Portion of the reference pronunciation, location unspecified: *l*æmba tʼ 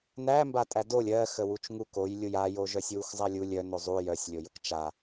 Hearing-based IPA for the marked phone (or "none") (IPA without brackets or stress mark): n